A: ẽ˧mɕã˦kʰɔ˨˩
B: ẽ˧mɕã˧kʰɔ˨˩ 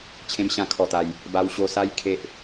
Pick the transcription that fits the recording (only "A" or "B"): B